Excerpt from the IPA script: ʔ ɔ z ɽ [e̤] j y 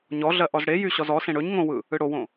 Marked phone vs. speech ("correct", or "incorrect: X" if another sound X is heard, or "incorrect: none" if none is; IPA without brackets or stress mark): incorrect: e